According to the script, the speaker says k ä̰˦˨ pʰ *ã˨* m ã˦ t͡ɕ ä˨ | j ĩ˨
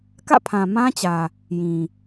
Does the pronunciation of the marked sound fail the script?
no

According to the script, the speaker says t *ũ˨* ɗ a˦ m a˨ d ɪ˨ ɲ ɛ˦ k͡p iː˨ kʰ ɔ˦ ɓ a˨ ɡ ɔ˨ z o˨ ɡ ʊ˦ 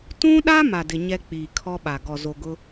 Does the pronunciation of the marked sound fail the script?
yes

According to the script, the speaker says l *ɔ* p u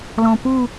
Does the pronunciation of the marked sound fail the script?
yes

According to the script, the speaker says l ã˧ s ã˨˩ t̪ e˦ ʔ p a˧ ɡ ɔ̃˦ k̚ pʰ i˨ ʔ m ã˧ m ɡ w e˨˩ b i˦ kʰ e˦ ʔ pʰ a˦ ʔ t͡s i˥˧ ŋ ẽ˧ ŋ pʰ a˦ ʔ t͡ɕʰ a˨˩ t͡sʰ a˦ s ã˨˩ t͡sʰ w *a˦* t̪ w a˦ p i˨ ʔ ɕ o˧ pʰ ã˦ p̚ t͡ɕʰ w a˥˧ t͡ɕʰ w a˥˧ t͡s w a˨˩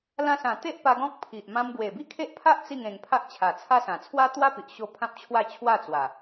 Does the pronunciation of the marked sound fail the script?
no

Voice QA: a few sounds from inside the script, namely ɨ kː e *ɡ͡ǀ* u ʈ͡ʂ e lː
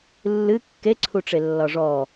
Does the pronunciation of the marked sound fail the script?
yes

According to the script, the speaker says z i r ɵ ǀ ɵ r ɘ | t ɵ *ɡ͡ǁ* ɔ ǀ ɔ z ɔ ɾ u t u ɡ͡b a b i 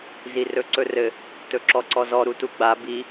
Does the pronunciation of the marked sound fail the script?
yes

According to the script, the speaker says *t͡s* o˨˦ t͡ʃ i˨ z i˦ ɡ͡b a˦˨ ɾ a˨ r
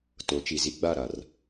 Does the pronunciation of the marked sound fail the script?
yes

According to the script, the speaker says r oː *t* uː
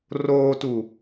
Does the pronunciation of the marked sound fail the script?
no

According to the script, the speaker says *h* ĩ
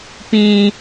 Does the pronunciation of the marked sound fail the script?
yes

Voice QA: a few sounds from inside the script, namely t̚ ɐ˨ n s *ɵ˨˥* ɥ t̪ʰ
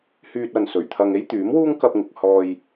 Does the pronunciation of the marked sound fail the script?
yes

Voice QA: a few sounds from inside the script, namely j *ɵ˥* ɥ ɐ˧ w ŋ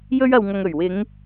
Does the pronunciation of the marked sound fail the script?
no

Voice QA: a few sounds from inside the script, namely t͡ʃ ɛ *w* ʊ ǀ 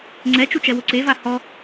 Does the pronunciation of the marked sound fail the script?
no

